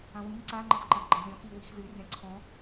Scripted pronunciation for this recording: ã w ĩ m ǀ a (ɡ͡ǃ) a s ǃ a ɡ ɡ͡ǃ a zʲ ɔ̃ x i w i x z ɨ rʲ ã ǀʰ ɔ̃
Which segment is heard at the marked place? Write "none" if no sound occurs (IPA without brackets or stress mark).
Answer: ŋ͡ǃ